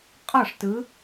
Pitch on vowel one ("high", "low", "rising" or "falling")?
falling